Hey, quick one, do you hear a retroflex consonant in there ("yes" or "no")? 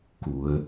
no